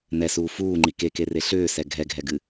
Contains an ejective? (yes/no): no